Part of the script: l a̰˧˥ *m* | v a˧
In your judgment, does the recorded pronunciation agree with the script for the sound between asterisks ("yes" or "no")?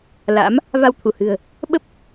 yes